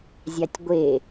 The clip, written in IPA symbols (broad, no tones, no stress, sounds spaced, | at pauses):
zʲ ɑ tʲ ɡʷ e